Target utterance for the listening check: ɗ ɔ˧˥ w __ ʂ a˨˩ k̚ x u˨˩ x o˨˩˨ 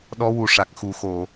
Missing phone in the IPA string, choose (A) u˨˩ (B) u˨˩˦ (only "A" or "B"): A